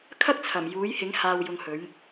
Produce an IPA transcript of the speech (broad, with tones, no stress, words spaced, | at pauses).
kʰɐ˥k̚t͡sʰɐ˨˩m juː˨˥jhɪ˨˥ŋ haː˨w jʊ˧ŋhɵ˨˥ɥ